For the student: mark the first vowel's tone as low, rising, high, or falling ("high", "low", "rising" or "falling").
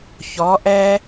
rising